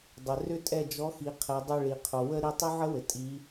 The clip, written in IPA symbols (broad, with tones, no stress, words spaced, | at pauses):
dˤɘ˩ rʏ˦˥tʼɛ˦˨d͡ʒɔ˨˥xi˩˧ qʰɛ˩˧dˤʏ˦˨ɭi˩qʰo˩ wə˦˥ ɾi˩˧˩tˤʏ˦˥ʕə˦˥wɘ˩ tʼi˩˧